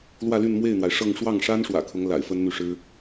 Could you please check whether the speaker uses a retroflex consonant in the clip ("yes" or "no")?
yes